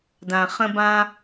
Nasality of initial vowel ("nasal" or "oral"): nasal